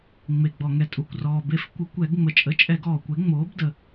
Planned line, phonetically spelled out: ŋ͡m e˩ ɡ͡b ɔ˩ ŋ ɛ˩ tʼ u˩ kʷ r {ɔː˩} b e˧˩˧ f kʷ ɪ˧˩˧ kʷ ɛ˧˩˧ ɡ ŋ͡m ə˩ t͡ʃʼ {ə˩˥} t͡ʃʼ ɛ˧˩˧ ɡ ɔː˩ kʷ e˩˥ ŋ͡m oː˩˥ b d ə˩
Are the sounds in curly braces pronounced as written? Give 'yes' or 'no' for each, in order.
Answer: yes, yes

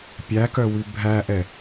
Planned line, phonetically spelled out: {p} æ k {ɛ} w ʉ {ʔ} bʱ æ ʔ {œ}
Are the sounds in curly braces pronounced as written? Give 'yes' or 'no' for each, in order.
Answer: no, no, no, no

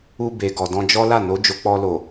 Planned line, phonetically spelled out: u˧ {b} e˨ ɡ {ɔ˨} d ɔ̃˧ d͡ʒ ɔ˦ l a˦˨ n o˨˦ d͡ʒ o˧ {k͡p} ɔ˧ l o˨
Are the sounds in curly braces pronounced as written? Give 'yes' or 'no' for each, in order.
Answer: yes, yes, yes

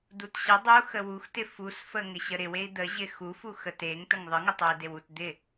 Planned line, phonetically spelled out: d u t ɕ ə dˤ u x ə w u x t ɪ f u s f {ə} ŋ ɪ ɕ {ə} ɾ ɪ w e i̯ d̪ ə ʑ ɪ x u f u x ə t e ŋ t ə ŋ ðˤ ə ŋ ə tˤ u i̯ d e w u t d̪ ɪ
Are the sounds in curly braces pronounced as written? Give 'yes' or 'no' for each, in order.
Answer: yes, yes

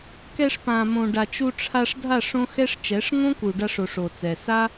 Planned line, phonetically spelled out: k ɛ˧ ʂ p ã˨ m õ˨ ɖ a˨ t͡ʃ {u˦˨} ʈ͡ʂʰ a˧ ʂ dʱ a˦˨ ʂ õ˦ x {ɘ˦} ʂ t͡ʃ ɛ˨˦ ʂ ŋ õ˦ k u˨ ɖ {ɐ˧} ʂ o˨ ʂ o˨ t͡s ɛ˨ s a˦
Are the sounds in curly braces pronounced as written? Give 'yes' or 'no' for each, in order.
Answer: no, no, no

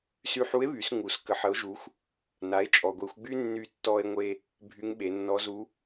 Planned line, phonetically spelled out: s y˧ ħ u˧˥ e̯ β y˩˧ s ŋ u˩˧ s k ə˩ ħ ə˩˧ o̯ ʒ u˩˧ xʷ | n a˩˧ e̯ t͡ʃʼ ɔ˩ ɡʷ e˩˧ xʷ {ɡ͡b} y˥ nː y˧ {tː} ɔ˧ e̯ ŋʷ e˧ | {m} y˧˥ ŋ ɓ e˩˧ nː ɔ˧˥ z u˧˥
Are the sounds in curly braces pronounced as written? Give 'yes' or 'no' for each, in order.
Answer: yes, yes, no

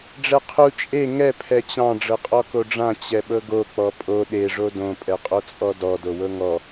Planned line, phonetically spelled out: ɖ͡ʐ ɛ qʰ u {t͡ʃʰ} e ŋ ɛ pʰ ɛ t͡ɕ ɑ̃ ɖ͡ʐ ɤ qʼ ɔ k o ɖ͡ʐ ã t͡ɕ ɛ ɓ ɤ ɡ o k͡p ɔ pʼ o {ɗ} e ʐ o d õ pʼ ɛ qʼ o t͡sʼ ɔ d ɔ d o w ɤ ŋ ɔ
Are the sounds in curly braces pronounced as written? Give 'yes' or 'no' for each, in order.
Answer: no, yes

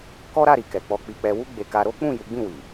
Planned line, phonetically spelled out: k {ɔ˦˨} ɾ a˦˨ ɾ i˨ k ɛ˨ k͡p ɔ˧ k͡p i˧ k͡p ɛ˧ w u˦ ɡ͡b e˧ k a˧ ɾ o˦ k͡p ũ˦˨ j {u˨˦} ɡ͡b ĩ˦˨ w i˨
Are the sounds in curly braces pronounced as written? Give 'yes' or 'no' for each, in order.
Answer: no, yes

